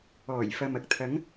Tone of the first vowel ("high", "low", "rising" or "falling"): low